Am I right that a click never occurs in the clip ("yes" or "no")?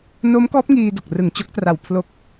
yes